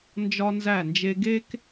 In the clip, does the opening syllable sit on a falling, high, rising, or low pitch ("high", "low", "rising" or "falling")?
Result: high